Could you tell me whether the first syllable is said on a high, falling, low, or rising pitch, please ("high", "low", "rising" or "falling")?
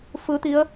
rising